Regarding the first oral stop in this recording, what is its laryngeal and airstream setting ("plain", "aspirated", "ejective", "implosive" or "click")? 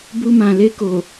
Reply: plain